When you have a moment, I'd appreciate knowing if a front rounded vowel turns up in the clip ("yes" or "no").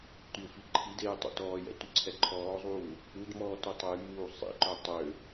yes